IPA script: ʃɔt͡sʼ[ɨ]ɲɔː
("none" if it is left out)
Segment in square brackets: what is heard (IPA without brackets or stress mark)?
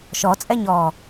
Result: ɛ